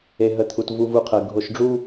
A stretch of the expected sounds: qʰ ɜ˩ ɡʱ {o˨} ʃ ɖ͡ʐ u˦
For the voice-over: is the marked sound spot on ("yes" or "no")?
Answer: yes